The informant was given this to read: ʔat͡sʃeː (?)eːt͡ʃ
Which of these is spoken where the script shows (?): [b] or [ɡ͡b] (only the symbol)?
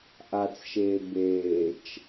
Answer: b